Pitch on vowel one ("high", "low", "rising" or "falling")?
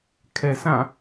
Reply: low